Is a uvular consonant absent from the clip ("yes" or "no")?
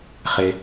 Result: no